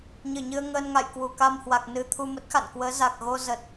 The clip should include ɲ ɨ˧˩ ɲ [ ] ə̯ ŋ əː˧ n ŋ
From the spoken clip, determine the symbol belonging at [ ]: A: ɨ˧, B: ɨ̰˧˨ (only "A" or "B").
A